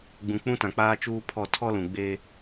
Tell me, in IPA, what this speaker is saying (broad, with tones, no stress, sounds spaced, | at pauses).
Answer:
ɡ͡b ũ˨ k͡p ũ˦ t ã˨ k͡p aː˦ t͡ʃ uː˦ pʰ ɔ˦˨ tʰ ɔ˦ l ũ˨ ɡ͡b eː˦